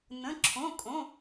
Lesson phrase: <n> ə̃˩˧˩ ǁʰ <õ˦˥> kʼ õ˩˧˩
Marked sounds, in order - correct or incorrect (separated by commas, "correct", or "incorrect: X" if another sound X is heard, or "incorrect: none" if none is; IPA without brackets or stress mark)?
correct, incorrect: õ˩˧˩